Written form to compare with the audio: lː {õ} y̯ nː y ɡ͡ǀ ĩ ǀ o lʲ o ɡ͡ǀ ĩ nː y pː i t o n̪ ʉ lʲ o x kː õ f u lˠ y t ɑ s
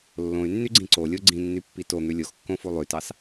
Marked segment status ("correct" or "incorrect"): correct